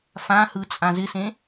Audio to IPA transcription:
f ã h ɯ t͡sʼ ã z ɪ s ẽ

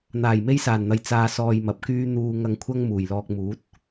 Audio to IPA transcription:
n̪ aː˨˩ j m e˥ j s aː˨˩ n n̪ ɐ˨ j t͡s aː˨ s ɔː˧ j m ɐ˨ p̚ k yː˥ n̪ uː˧ ŋ ɐ˧ ŋ kʷʰ ɐ˥ ŋ m uː˨˩ j l ɔː˧ k̚ m uː˨˥ t̚

